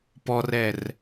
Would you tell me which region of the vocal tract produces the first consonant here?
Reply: lips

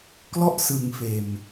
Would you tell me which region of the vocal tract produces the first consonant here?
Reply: velum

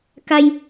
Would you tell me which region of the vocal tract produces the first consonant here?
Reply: velum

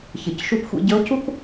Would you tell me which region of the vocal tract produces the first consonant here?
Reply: palate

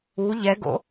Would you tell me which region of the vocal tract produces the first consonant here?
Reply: palate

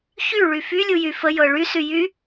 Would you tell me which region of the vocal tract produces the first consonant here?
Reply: palate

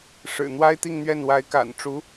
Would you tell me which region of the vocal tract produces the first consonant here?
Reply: retroflex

